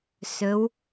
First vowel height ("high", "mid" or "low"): mid